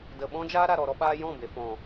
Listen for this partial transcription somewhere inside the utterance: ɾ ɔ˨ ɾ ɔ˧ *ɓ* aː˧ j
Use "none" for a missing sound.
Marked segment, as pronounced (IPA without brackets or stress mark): ɓ